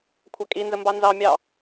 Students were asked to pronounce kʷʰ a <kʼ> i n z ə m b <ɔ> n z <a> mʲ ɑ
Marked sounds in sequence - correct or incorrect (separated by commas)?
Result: correct, incorrect, incorrect